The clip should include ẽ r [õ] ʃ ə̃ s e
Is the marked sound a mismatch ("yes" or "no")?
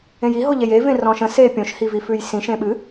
yes